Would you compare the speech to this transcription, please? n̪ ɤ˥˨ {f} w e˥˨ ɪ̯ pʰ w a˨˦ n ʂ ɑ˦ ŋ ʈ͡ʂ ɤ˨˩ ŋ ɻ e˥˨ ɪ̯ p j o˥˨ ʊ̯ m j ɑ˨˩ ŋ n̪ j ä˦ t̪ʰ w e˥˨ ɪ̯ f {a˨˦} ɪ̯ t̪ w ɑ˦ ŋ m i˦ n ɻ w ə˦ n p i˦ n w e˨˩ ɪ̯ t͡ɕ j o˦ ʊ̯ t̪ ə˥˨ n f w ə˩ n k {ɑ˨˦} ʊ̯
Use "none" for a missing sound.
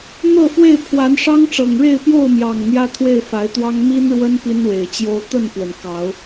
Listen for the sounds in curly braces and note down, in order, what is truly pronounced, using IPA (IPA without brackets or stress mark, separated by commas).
f, a˨˦, ɑ˨˦